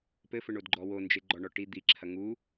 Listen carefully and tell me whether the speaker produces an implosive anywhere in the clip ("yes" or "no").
no